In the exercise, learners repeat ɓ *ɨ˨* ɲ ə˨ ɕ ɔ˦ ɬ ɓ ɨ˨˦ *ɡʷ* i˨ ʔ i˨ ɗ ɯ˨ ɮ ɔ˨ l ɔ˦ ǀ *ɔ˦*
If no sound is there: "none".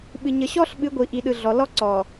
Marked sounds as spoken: ɨ˨, ɡʷ, ɔ˨

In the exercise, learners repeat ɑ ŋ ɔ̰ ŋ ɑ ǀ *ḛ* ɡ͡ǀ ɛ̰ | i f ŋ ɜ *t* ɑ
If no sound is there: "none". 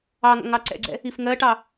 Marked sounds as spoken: ɛ̰, ʈ

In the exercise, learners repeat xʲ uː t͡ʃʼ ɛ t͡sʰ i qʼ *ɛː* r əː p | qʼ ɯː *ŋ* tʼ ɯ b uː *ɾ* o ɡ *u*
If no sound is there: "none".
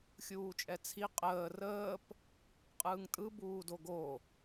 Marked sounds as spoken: əː, ŋ, d, o

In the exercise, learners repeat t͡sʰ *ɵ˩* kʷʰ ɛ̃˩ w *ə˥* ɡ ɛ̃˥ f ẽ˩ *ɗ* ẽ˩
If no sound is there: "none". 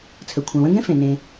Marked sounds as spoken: ə˩, ə̃˥, n

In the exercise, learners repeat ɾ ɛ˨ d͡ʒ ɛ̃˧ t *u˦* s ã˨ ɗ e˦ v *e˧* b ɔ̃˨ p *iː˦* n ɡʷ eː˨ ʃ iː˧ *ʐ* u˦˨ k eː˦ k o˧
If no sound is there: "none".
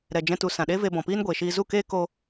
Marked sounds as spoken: u˨, e˧, iː˦, z

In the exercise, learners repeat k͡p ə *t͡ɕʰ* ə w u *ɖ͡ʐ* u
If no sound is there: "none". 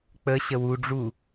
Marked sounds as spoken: ɕ, ɖ͡ʐ

